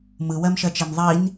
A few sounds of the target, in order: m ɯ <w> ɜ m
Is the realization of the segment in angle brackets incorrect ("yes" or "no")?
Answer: no